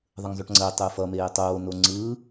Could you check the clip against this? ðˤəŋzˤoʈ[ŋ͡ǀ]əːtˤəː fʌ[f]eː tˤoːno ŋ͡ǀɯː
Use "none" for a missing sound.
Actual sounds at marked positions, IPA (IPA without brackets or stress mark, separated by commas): ŋ͡ǀ, m